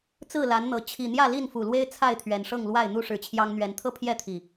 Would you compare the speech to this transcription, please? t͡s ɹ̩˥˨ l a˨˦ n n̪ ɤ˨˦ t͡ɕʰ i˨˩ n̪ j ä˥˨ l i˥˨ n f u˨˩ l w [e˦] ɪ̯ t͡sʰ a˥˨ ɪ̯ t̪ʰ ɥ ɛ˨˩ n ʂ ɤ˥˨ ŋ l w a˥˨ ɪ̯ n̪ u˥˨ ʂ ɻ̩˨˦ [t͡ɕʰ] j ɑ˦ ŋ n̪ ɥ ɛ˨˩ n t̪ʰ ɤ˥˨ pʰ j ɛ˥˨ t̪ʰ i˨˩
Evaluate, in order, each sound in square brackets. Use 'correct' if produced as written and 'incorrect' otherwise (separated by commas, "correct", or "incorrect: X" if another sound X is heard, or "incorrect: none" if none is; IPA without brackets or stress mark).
correct, correct